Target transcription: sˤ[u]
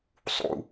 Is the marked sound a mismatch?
yes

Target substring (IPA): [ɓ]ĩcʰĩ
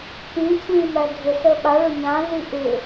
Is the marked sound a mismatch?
yes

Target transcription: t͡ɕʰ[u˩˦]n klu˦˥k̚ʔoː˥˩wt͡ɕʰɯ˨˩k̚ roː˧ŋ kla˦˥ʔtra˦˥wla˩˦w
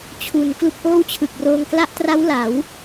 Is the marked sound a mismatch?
no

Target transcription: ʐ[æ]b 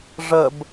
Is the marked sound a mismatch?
yes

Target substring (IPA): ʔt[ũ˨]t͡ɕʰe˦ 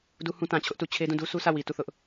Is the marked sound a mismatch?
yes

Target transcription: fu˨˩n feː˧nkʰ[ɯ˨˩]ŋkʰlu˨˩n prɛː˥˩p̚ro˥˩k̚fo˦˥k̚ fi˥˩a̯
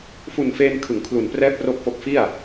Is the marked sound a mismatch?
yes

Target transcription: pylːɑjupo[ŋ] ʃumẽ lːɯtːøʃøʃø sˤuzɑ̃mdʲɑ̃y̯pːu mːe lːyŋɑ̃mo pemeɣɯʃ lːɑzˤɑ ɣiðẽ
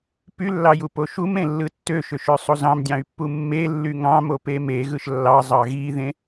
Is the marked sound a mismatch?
yes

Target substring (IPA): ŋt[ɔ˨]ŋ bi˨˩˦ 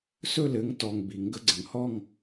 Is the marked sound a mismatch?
no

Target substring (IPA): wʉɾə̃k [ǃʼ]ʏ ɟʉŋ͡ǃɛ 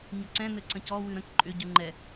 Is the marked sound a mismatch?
no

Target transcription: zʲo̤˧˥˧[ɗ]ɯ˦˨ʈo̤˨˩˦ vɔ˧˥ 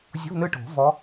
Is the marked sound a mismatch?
yes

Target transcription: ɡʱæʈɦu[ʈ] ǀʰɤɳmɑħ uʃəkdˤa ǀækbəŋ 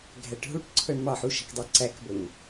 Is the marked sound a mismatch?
no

